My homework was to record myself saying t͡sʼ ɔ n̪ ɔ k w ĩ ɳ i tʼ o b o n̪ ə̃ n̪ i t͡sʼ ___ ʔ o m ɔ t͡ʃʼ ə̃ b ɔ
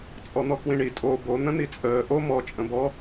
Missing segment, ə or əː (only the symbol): əː